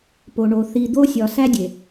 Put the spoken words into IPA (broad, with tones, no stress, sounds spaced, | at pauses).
p o˨ ɳ o˨ θ i˨ d̪ o˦ sʲ ɒ˨ s æ˦ dʲ e˨